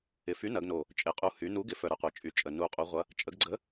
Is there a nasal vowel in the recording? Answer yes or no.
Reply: no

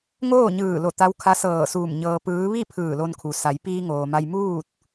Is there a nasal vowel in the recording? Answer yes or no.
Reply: no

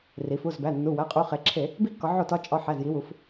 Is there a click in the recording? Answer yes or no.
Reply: yes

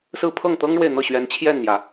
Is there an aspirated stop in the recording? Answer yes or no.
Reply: yes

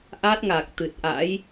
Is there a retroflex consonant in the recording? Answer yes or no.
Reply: no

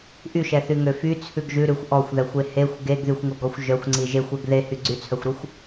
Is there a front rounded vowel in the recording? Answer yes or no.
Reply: yes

